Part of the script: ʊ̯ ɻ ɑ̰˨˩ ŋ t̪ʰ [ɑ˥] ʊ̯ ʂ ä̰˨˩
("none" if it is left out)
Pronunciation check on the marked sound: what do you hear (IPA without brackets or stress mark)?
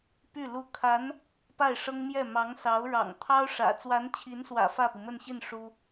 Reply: ɑ˥